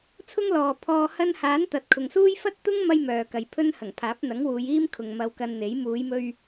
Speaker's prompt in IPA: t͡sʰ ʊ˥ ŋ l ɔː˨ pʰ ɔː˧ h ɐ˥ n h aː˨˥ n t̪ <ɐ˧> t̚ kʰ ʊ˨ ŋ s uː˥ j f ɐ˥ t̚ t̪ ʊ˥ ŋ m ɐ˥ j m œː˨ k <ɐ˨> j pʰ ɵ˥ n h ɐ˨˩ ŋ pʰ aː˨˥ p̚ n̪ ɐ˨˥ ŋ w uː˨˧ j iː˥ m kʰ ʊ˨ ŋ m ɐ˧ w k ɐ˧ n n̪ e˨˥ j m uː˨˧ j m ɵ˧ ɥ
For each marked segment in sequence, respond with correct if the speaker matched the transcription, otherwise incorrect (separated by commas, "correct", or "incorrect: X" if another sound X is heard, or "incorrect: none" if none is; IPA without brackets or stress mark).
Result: incorrect: ɐ˨, correct